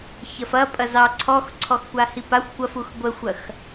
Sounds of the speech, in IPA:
ç ɐ f ɐ pʼ ɐ z ɑ ǀʰ ɔ x ǀʰ ɔ x kʷ a h i p a xʷ kʷ ɐ f u x ɡʷ ə xʷ ɐ x

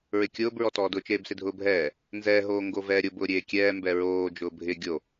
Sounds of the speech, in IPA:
ɹ ɪ kʲ ʊː b ɹ ɔ t ɔː d ʊ t͡ʃ eː b s ɪ dʱ ʊː bʱ ɛː | n z ɛ ɦ oː ŋ ɡ o v ɛː ɾʲ ʊ b ʊː ɾʲ eː kʲ ɛː m b ɛ ɹ oː d͡ʒ ʊː bʱ ɪ ɡʲ o

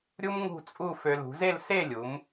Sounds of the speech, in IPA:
ɾʲ u˥ m ŋ ṳ˥˧ t͡sʼ u˥˧ f ø˧ l ṳ˩˧ z e˥˧ l s e˥˧ lʲ u˩˧ m

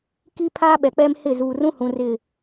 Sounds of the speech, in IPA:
k i˦ pʰ aː˦ ɓ ɛ˨ k͡p ɛ˦ m h ɪ˦˨ z uː˨ r ũ˦ h ũ˨ r ɪ˦˨

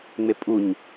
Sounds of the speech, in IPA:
ŋ͡m e pʼ u ɲ

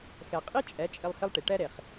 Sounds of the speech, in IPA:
x ɛ˨ qʼ i˦ t͡ʃʼ ɛ˨˦ t͡ʃʼ ɪ˧ lˠ h ɪ˧ lˠ ʈ i˨ ʈ ɛ˦ ɾ e˨ χ

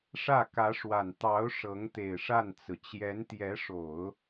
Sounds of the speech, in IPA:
ʂ ä˥˩ k ä˧˥ ʂ w a˨˩ n t̪ ɑ˧˥ ʊ̯ ʂ ɤ˧˥ ŋ t̪ e˨˩ ɪ̯ ʂ a˥˩ n t͡s ɹ̩˩ t͡ɕ j ɛ˧˥ n t̪ j ɛ˧˥ ʂ o˨˩˦ ʊ̯

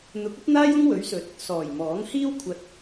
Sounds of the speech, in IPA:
n̪ ʊ˨˥ k̚ ɐ˥ p̚ n̪ aː˥ j ʊ˥ ŋ w ɵ˨˥ ɥ s ɵ˨˥ t̚ | s ɔː˨˩ j m ɔː˨˥ ŋ h iː˥ w kʷʰ ɐ˧ t̚

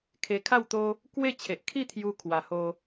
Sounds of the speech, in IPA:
kʰ e˧ kʰ a˥˧ w t̪ o˦ | k w e˥˧ t͡ɕʰ e˨ ʔ kʰ i˥˧ t̪ʰ j u˧ kʰ w a˨˩ h o˧

